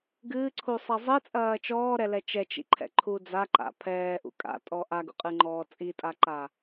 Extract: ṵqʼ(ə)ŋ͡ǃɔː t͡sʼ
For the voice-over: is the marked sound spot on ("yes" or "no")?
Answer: no